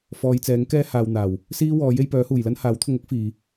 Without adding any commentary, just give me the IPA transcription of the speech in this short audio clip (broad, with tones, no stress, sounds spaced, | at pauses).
f ɔː˨˧ j t͡s ɛː˨˥ ŋ k ɛː˥ h aː˨ w n̪ aː˨˩ w | s iː˥ w ɔː˨˥ j e˧ j p œː˨˥ h uː˨˩ j l ɐ˥ n h aː˨˥ w t̪ʰ ʊ˧ ŋ ʊ˥ k̚ f iː˨